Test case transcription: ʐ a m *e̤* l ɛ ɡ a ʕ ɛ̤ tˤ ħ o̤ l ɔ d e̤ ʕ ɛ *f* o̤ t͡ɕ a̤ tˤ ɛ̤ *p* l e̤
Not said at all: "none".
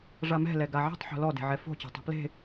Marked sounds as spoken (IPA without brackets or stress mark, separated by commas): ɛ̤, f, p